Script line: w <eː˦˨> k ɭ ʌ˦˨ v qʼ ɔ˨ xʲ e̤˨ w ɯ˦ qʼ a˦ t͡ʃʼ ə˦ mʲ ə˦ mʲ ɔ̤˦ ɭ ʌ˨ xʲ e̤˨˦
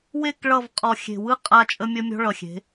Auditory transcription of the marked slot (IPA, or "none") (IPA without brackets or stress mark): e˦˨